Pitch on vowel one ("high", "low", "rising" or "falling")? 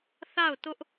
falling